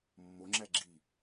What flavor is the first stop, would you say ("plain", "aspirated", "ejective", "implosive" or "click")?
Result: click